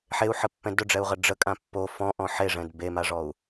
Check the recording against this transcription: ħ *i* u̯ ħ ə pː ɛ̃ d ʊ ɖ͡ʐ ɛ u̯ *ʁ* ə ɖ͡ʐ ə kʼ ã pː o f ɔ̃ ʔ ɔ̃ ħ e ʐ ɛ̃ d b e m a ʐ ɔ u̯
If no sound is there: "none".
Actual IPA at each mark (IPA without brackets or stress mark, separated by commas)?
e, ʁ